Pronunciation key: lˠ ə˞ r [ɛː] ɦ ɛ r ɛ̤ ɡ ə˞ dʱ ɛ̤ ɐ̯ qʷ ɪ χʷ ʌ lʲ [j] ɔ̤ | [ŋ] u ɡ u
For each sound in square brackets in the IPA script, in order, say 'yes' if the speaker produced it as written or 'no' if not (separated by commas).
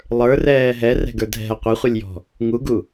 yes, yes, yes